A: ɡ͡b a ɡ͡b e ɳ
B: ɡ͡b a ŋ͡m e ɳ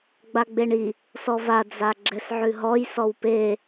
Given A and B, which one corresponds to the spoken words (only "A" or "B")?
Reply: A